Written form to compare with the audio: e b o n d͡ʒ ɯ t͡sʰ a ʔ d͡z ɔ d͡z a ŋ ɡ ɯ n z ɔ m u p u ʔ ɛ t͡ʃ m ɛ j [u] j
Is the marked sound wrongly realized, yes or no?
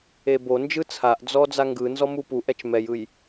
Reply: yes